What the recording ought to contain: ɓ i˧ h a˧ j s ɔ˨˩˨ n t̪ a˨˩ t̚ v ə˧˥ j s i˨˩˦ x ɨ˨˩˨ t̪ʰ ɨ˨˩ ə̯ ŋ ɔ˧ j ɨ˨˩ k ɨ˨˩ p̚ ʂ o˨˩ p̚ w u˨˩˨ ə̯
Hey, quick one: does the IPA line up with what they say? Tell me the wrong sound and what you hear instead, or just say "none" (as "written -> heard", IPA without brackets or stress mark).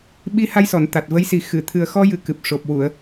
ŋ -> x